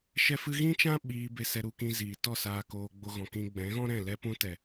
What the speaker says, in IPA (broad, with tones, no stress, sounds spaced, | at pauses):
ʃ ɛ˧ f ɨ˧ ɣ ĩ˦ t͡ʃ ã˦ ɓ iː˧ b e˧ s ɛ˧ ɾ u˧ k ĩ˧ z iː˨ t ɔ˦˨ s aː˧ k oː˧ ɡ͡b o˧ ɣ ɔ̃˨ k ĩ˧ ɡ͡b ɛ̃˨˦ ɣ ɔ̃˦ ɾ ɛ̃˦˨ l ɛ˧ p ũ˧ t ɛ˨